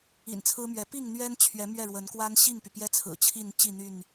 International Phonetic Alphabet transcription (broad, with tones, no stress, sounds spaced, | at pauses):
ḭ˨˩ n t͡sʰ ɹ̩˦ m ɥ ɛ˨˦ p i˥˨ ŋ n̪ ɥ ɛ˦ n t͡ɕʰ ɥ ɛ˨˦ m ɥ ɛ˥˨ ɻ w ə˨˦ n k w a˦ n ɕ i˥˨ ŋ p y˩ p j ɛ˦ t͡sʰ ɹ̩˨˩ t͡ɕʰ i˥˨ n t͡ɕ i˥˨ n̪ y˥˨ n